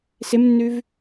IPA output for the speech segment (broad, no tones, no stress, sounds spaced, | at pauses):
s ɪ m nː ʉ v